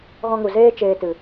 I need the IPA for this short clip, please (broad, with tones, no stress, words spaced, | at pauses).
ɣɔ̃˧ŋu˨zeː˦ t͡ʃeː˧tɨ˨